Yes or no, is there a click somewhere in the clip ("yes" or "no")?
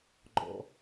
yes